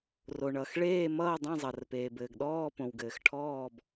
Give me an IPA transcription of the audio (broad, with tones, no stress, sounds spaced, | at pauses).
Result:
r o˩ ɳ ʌ˩ x ɭ eː˥˨ m ʌː˥˨ dˤ ẽ˥˨ zˤ ʌ˩ r p eː˩ b ɘː˩ ɡ ɗ ɔː˥˨ p õ˩ w ɡ ɘː˩ x ʈʰ ɔː˥˨ b